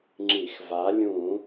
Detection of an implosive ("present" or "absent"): absent